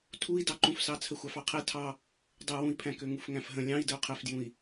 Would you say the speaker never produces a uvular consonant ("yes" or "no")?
no